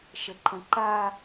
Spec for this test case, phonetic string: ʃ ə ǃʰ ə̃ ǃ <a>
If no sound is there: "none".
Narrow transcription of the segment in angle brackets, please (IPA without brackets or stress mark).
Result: a